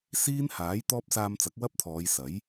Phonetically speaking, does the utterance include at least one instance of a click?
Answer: no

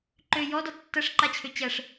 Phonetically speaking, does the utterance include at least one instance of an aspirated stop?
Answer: yes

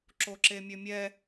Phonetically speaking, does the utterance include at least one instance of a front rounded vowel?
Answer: yes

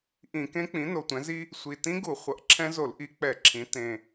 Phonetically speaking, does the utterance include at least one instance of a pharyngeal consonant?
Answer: no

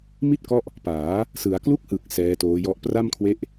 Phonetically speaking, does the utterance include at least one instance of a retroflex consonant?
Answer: no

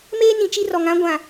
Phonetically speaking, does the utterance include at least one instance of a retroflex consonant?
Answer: no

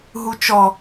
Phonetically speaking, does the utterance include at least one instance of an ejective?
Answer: no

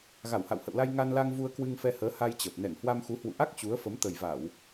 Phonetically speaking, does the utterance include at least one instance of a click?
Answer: no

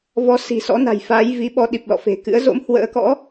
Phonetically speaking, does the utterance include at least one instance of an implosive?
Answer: yes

